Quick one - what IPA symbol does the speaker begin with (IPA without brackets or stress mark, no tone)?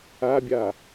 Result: a